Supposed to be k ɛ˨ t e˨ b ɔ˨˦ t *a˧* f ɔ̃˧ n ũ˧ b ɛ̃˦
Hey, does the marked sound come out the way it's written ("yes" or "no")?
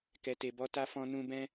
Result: yes